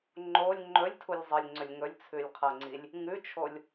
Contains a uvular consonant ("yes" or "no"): yes